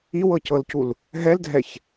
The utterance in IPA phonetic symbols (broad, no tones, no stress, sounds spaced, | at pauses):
i w ɤ c ɤ l c u l | ɦ ɛ l dʱ ɛ ç